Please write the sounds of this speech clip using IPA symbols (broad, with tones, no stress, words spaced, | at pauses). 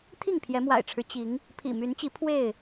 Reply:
t̪ʰi˥˨ŋpʰjɛ˨˦mwa̰˨˩ɪ̯ʈ͡ʂʰɻ̩˦ t͡ɕi˨˦ŋ | pʰḭ˨˩my˨˦nt͡ɕi˨˦ pʰwe˥˨ɪ̯